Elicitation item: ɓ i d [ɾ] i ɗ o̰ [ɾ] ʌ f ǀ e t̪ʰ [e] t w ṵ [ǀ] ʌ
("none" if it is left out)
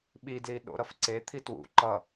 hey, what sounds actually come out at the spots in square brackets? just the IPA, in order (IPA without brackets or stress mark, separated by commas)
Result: l, ɾ, i, ǃ